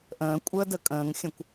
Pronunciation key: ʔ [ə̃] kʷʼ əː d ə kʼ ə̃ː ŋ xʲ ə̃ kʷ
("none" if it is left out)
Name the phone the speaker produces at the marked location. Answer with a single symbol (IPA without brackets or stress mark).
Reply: ə̃ː